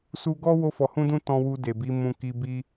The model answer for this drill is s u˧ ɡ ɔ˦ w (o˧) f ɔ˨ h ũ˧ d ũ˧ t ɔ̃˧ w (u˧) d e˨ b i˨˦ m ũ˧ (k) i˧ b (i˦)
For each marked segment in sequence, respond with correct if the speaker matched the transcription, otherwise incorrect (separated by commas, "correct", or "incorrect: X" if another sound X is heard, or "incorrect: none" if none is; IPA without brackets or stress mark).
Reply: correct, correct, correct, correct